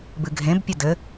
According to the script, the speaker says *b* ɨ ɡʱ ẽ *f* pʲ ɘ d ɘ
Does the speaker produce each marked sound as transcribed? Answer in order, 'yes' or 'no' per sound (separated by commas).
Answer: yes, no